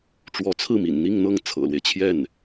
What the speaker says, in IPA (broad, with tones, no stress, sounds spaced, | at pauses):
ʈ͡ʂ w ɔ˧˥ t͡sʰ ɹ̩˥˩ m ḭ˨˩ n n̪ i˥˧ ŋ n̪ ɤ˥˩ ŋ t͡sʰ ɤ̰˨˩ l w e˦ ɪ̯ t͡ɕʰ j ɛ˥˩ n